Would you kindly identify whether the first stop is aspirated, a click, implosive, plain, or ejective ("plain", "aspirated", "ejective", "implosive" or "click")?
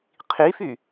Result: aspirated